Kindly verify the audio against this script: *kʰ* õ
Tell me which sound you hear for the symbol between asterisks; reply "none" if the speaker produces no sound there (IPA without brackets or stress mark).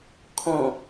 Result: kʰ